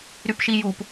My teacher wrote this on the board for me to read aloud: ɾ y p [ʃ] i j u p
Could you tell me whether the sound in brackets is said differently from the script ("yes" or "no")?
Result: no